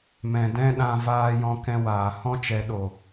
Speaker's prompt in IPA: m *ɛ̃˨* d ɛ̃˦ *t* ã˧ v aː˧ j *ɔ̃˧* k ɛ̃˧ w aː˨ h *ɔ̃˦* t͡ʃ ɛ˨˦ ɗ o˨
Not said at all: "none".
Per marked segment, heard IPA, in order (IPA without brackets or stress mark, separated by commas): ɛ̃˨, ɗ, ɔ̃˧, ɔ̃˦